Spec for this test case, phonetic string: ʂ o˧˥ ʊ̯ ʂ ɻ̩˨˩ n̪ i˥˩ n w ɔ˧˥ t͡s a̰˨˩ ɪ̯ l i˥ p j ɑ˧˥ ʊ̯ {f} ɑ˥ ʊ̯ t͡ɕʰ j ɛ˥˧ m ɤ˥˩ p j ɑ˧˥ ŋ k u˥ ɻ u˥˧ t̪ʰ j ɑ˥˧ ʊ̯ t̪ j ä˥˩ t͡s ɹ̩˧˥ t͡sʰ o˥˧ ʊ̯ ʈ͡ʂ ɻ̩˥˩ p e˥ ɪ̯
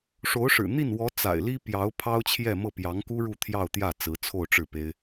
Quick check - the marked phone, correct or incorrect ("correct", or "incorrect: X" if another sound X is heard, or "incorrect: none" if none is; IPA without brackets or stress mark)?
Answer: incorrect: pʰ